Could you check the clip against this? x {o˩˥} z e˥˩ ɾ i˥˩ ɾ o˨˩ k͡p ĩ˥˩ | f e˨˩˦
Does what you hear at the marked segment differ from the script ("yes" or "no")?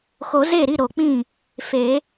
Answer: yes